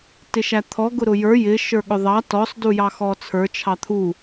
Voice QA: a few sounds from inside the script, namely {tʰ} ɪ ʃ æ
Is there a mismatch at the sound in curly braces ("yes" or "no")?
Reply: yes